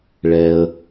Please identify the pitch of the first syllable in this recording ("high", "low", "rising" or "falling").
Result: low